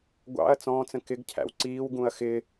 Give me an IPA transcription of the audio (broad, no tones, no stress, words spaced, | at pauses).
ɡʷɑ̰ɐ̯ t͡sɔ̃ːt͡sə̃ kɪɡcʰæ̰w ǀiːwɡũɐ̯ xɪ